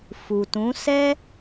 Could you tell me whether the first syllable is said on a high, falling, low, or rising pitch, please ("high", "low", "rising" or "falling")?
low